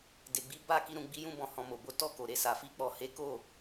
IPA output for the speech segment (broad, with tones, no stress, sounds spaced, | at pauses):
d e˨ ɡ͡b i˨˦ b a˦˨ k i˧ ɾ ũ˨ ɡ͡b i˧ j ũ˧ b ɔ̃˨ h ɔ̃˨ m o˨ b o˨˦ t ɔ˦˨ k o˨ ɾ e˧ s a˨ f i˧ k͡p ɔ˨ h e˨˦ k o˦˨